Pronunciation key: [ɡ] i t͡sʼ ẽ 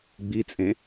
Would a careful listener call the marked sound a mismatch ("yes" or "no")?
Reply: yes